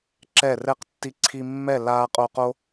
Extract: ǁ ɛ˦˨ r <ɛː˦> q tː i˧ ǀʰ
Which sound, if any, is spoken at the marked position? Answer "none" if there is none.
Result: ɛ˦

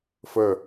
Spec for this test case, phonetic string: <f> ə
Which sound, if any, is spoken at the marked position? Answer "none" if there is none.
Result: f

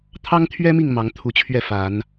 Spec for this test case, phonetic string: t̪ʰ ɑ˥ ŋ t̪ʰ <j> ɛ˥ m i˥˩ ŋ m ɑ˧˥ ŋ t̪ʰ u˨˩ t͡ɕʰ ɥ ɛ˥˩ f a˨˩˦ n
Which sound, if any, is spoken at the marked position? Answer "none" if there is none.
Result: ɥ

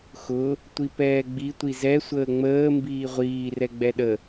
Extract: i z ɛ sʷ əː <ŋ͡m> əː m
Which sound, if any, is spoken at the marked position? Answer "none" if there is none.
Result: ŋ͡m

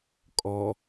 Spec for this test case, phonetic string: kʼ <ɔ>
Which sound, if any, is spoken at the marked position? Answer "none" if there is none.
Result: ɔ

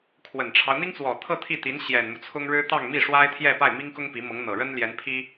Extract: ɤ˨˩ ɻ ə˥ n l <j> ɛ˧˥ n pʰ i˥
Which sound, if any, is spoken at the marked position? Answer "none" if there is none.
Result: j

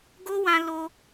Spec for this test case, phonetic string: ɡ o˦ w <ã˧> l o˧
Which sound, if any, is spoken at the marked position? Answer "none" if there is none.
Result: ã˧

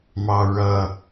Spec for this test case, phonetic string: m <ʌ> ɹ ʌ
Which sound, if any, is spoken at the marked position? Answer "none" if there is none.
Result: ɑ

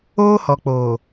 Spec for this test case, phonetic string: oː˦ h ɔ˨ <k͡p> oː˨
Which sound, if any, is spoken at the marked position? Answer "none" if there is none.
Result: k͡p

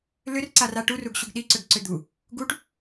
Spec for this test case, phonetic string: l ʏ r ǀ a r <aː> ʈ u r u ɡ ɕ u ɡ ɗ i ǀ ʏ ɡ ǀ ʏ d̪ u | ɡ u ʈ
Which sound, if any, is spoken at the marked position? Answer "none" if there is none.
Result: a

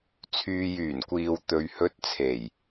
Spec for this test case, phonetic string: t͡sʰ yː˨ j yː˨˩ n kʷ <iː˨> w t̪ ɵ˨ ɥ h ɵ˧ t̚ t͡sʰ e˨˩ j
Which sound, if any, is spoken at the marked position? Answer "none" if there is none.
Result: iː˨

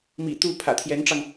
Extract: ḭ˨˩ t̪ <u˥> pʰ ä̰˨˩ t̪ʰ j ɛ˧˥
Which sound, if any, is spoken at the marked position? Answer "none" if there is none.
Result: u˥˩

